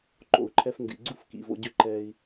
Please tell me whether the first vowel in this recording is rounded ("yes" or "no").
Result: yes